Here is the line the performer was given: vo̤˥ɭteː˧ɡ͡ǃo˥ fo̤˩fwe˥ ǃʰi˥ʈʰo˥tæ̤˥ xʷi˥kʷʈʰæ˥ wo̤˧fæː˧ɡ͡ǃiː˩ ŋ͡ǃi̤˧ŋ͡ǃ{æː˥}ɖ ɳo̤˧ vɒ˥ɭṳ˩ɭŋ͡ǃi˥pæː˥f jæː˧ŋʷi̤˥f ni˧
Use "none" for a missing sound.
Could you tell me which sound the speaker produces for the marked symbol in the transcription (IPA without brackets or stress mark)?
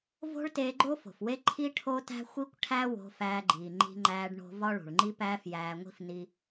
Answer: æː˧